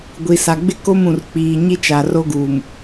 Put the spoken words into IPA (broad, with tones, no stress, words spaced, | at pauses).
ɡʷi˨ sa˨ɡ͡bɪ˦ ko˦mũ˨rk͡piː˨ ɲi˦t͡ʃa˨ro˦ ɡuː˨m